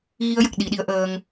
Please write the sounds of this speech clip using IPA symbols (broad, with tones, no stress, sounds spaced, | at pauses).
ɣ i˧ ə̯ j ə˨˩ k̚ ɗ i˨˩˦ ɗ i˧˥ ə̯ ʔ əː˧ ŋ